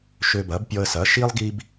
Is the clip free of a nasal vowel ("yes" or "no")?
yes